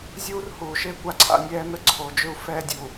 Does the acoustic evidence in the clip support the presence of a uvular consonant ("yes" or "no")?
no